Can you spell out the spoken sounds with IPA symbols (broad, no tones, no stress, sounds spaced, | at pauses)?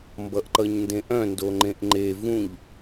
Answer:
m b ʌ ʔ ǃ ʌ ɲ n d ẽ ʔ œ̃ n d o ŋ͡ǃ ẽ ʔ ŋ͡ǃ e v ũ ʎ